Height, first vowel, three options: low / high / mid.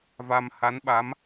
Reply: low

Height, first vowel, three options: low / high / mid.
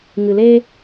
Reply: high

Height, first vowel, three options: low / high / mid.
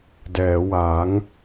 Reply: mid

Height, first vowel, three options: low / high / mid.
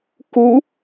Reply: high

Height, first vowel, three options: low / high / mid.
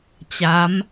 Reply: low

